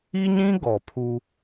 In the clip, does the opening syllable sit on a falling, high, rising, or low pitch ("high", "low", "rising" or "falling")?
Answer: high